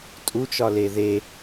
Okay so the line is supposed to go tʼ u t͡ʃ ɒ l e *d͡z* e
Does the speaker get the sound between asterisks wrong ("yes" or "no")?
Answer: yes